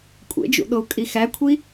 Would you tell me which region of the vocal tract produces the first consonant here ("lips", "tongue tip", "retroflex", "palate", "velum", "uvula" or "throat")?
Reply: velum